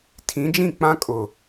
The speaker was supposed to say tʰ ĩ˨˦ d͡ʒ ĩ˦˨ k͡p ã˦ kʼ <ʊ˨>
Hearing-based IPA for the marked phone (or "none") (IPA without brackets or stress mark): ʊ˨